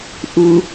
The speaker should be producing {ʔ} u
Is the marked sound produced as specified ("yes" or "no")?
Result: yes